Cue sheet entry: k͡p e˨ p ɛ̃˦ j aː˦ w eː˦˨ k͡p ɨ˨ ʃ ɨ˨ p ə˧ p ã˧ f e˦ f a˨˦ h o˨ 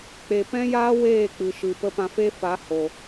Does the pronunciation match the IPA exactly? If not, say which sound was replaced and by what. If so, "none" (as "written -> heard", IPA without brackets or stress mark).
none